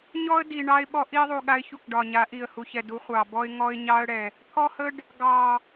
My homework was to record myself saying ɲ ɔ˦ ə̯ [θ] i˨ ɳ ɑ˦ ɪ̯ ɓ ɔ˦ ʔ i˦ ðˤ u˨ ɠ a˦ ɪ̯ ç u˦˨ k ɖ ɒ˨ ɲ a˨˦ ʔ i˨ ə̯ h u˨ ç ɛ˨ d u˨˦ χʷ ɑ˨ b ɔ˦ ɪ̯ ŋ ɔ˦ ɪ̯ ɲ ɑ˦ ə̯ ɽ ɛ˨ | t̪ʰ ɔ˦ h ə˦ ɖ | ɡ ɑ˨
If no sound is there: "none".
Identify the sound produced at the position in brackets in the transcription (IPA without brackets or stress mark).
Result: d